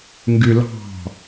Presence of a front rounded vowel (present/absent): present